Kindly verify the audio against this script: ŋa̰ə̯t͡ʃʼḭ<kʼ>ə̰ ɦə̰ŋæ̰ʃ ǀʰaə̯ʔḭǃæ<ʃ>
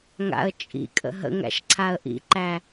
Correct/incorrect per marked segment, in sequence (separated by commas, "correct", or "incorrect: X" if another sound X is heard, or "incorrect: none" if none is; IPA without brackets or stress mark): correct, incorrect: none